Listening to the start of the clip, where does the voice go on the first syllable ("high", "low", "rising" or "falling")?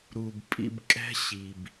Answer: low